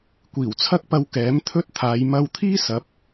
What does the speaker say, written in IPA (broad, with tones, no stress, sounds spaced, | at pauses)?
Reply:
kʷ iː˨˩ w t͡sʰ ɐ˥ k̚ p ɐ˧ w k ɛː˨˥ m t̪ʰ ɵ˥ t̚ t̪ʰ aː˨˧ j m ɐ˧ w t̪ʰ iː˥ s ɐ˨˥ p̚